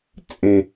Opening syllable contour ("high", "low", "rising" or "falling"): low